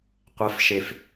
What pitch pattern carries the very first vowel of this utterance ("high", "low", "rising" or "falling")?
rising